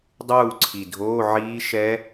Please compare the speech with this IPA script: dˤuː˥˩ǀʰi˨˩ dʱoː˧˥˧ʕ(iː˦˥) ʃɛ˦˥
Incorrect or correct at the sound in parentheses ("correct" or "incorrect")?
correct